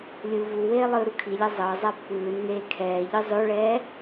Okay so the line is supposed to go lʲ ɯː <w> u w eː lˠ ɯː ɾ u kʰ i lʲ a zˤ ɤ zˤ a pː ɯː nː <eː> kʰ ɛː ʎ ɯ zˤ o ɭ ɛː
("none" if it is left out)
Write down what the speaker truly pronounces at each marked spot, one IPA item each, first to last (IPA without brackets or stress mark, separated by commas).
v, eː